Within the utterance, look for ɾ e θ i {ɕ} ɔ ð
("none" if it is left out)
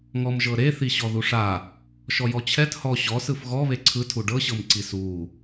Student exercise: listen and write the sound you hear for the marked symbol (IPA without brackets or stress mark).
ɕ